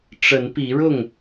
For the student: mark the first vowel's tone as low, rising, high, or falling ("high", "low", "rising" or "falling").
rising